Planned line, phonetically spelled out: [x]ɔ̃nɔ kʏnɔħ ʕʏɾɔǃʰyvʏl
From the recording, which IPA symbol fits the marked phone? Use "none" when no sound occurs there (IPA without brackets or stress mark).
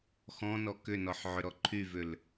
x